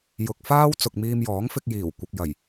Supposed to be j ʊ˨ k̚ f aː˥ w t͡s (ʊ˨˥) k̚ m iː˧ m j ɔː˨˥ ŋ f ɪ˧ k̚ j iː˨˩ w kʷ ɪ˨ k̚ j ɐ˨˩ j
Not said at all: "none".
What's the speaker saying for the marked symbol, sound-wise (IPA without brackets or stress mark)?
ʊ˨